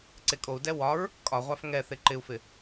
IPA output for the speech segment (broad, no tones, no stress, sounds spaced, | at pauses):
ǀ e kʼ o u̯ d ɛ w ɒ ɹ | kʼ ɒ ʁʷ a f ŋ ɛ θ e ǃ ɪ u̯ f ɪ